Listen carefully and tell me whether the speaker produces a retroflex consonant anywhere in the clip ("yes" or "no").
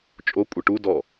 yes